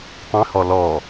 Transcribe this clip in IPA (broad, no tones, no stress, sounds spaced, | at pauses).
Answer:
tˤ ĩ h ɔ l ɔ